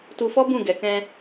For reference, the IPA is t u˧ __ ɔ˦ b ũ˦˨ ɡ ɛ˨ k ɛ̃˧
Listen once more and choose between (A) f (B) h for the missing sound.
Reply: A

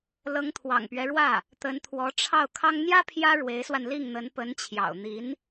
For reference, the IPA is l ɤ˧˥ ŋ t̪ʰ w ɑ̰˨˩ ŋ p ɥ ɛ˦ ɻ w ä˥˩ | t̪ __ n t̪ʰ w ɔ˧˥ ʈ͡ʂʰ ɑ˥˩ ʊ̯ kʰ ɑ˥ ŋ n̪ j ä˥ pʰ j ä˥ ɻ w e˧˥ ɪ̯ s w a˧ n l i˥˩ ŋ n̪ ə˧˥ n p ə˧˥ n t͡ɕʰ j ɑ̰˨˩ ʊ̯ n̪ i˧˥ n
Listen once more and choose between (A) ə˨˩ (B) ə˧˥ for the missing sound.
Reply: B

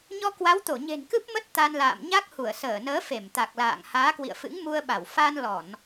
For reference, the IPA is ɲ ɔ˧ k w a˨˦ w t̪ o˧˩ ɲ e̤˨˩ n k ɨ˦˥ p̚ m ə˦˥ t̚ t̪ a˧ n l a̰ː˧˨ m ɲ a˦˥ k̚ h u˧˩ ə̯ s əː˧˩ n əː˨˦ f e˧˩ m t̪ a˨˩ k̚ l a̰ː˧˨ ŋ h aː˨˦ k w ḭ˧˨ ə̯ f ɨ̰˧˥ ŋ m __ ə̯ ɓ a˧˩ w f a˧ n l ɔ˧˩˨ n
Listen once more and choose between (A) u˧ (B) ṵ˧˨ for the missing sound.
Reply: A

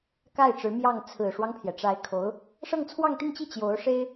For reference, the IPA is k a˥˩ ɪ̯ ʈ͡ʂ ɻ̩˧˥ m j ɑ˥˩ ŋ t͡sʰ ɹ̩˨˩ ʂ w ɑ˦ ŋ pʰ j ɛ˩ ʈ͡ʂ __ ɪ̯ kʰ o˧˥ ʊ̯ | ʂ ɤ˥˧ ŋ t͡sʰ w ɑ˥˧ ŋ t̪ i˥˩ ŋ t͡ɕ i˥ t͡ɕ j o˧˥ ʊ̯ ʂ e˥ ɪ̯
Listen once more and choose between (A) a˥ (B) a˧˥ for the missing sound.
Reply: B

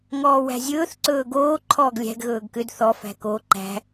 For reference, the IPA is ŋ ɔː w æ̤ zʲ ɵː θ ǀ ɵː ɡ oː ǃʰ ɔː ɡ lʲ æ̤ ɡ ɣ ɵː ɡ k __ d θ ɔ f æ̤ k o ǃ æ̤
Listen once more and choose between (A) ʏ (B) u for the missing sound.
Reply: A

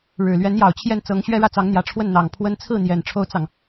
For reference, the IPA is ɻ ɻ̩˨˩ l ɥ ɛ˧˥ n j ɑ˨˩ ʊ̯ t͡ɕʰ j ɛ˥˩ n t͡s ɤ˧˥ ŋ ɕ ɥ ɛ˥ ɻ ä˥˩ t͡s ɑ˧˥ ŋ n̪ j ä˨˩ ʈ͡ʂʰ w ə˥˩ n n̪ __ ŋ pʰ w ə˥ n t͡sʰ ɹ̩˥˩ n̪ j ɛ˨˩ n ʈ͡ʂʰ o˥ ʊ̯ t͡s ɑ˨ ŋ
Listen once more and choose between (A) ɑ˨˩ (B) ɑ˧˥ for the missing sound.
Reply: A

